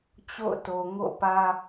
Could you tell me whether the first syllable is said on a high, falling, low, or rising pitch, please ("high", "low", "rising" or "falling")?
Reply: falling